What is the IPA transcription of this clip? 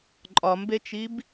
ǃʼ ɒ m b e t͡ʃ i b

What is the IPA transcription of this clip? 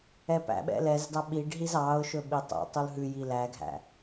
ɛ p æ̰ ɓ ɛ̰ l ɛ z d ɑ ɓ i ɖ ɦ i z ɑ ʊ̯ ʃ ɵ ɓ i tˤ ɛ̰ tˤ u l ɦ ʉ j i l æ ɡʱ æ̰

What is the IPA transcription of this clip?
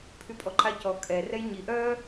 pʰ y pʼ ɔ ǃ a c ɔ kʼ ɛ r ɛ j ɲ i ʔ œ

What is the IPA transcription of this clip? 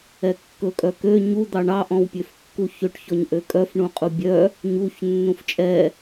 ɛ kː ɵ kʼ œ k ø ɲ u d̪ ɑ ɳ ɑ ʔ ɔ̃ w pʲ ø f kː u ç ø ʈ ç ɔ ɲ ʔ ø kʼ œ f ɳ ũ qʼ u bʲ œ | ɲ u ç nː ũ f t͡ʃʼ ɛ

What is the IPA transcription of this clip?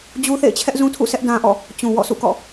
d͡ʑ u˦ θ ḛ˦˨ ɪ̯ t͡ɕʰ ɛ˦ ʔ z ũ˦ tʰ ṵ˦˨ s ɛ˦ ʔ d ã˦ ʔ ɔ̰˦˨ | t͡ɕ ũ˨ w ɔ̰˦˨ sʰ ṵ˦˨ k ɔ̰˦˨

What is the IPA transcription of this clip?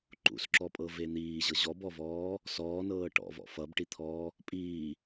ǃ ṵ s ǁ ɔ pʼ ɤ v e n̪ iː ʑ ɤ ʑ ɔ b ɔ v ɔː | s ɔː n ɤː ʈ ɔ̰ v ɔ̰ f ʌ b ʈ i t̪ʰ ɔː | pʼ iː

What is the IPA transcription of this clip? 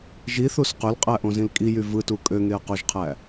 ʒ i θ u s q ø l qʼ æ ʔ õ z ĩ l kʼ i j y v ɯ t u kʼ ø ŋ e ɐ̯ q o ʒ qʰ æ

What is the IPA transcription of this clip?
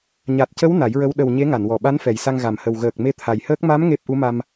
ɲ a˨˩ t̚ c ə˧˥ w n a˨˩˦ j ɹ ə˧˥ w ɗ ə˨˩ w ɲ e˧˥ ŋ a˨˩˨ n w ɔ˨˩ ɓ a˧˥ n f ɛ˨˩ j s a˧ ŋ ɣ a˨˩ m h ə˨˩ w ɣ əː˨˩ k̚ m e˧ t̪ʰ a˨˩ j h əː˦˥ k̚ m a˧˥ m ŋ e˦˥ p̚ ʔ u˧˥ m a˧ m

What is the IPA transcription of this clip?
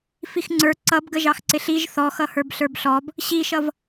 f i x ŋ͡ǀ ə˞ ǀ ʌ b ɡ ə ʒ ɑ x ǀ ɪ ɬ i ʒ θ ɔ x ʌ h ə˞ b ɬ ə˞ b ɬ ɔ b | ɕ i ʃ ʌ v

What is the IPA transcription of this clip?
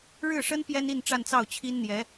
ɻ ɻ̩˥˩ ʂ ə˥ n p j ɛ˥ n i˥˧ n ʈ͡ʂ a˥˧ n t͡s ɑ˥˩ ʊ̯ t͡ɕʰ i˥ n n̪ j ɛ˧˥

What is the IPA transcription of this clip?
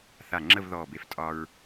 θ a˧˩ ŋ͡ǁ ə˥˧ v ð ɔː˧˩ b e˧˩ f tʼ ɒ˧ ɹ

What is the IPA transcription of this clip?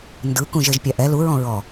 n d ɯ k ũ ʒ e ʒ pʲ a ʔ ɛ l u ɹ ɔ̃ ɹ ɔ

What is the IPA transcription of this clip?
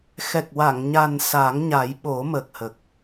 x ɛ˨˩ k̚ w a˨˩˨ ŋ ɲ a˨˩ n s a˨˩˦ ŋ ɲ a˨˩˦ j ɓ o˨˩˦ m əː˨˩ k̚ h ə˨˩ k̚

